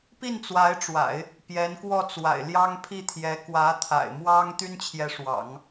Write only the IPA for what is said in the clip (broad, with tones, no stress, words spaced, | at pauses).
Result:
pi˥˩nt͡swa˧˥ɪ̯ʈ͡ʂwa̰˨˩˦ɪ̯ | pjɛ˧˥nkwɔ˥˩t͡swa̰˨˩ɪ̯ ljɑ˥ŋpʰi˥˩t̪ʰjɛ˧˥ kwä˧˥t̪ʰa̰˨˩ɪ̯ mwɑ˥ŋt̪y˥n t͡ɕʰjɛ˧˥ʂwɑ̰˨˩˦ŋ